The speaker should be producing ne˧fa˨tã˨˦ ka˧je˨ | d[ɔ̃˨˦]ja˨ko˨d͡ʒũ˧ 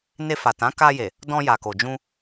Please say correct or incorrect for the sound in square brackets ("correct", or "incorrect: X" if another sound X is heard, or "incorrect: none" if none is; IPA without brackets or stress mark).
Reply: incorrect: ɔ̃˧